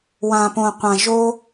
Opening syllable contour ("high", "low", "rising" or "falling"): low